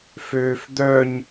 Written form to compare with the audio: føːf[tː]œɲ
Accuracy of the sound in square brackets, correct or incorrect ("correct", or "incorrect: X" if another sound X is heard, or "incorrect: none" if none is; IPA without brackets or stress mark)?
incorrect: d̪